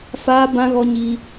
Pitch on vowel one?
high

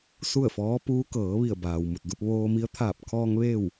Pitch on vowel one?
falling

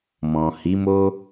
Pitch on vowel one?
low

